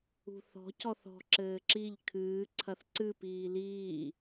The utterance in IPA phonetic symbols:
ṳ θ ɔ̤ c ɔ θ ɔ̤ ǁ ɘː ǁ i ʎ kʰ ɨː ǀʰ ɐ θ ǀ ɨ p iː l iː

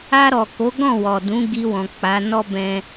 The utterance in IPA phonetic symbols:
a˧ ɾ ɔ˨ k o˨˦ ɡ ɔ̃˦˨ w ɔ˨ d ũ˨˦ ɡ i˧ w ɔ̃˨ k͡p a˨˦ n ɔ˦ b ɛ̃˦

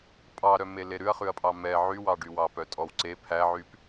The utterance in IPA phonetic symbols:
pʼ ɑ ɾ œ m e l e ɾ ʉ ɐ̯ χ ʉ ɐ̯ pʼ ɑ m ɛ ʕ y w ɑ ɖ y w ɑ p œ tʼ ɔ w ǀ e pʰ æ ʕ y p

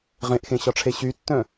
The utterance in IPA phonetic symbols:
ʁ ẽ ʔ x ẽ ɕ ɒ ʈ͡ʂʰ e ɕ y tː œ̃

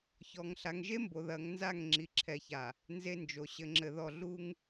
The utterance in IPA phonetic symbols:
ç ɔ˨ ŋ ɬ a˨ ŋ ʒ e˦ m b o˨ ð ɐ˨˦ ŋ n z a˦˨ ŋ ŋ͡ǁ i˨ ǁʰ ɛ˨ ç a˨ | n z e˦ n d͡ʒ o˨ ɕ ɘ˨ ŋ͡ǁ ɘ˨ ð ɔ˨ ɮ u˦ ŋ

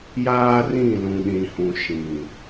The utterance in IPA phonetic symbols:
j aː˦ r ĩ˦˨ l ũ˨ ɗ ĩ˨ h ũ˨ ʃ ĩ˨

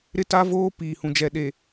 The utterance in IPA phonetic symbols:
ɾ ɪ˦ t a˦ v oː˦ p iː˨ h ũ˨ d͡ʒ ɛ˨ ɗ e˨

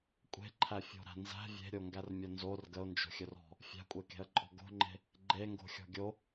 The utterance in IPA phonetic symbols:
kʷʼ e̤ ǃʰ æ fʲ o̤ ɾ æ̤ n z æ̤ vʲ e̤ ɾʲ o ŋ ɡ æ r mʲ o n z o r ɡ ə ʊ̯ n d͡ʒ o̤ xʲ ɵ r ɔ̤ | fʲ æ̤ kʷʼ e k e̤ ə̯ ǃʼ ɔ̤ ɡ o̤ ŋ͡ǃ e̤ | ɡ͡ǃ e ŋ ɡ o̤ xʲ ɔ̤ ɡʲ o

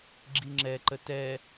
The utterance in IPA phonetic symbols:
ɡ͡ǁ i ŋ͡ǁ ɛ ǃ ə t ɛ

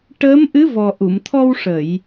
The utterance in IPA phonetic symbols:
ʈ əː˧˥ m ʔ ɨ˧˥ v ɔ˨˩ ʔ u˨˩˨ m t̪ʰ ɔ˧ w ʂ ə˨˩˨ j

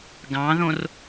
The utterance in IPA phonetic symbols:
ɡ ɑ̃ ð õ r

